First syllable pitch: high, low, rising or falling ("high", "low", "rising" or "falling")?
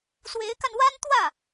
rising